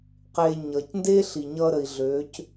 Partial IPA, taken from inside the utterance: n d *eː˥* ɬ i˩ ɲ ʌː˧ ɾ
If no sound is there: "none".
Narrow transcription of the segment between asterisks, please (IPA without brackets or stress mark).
eː˥